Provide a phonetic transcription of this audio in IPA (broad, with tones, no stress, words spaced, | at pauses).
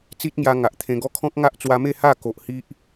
t͡si˦t̚ŋja˧ ŋa˨ʔt̪ʰẽ˧ɡɔ˦ kʰɔ̃˦k̚ŋa˦ʔt͡swa˧ me˥˧ha˥˧ ko˨ʔ hi˦ʔ